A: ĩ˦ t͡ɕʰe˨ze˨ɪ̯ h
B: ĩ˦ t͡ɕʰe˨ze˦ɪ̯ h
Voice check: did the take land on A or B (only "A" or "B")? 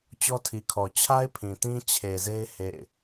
B